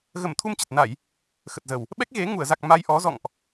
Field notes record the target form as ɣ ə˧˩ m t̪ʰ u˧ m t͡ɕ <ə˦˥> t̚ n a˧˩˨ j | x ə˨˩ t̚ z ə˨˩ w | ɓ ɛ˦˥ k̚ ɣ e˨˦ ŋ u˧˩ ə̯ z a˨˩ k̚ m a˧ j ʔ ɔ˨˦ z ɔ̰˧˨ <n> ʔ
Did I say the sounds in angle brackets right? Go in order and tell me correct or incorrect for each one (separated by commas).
incorrect, incorrect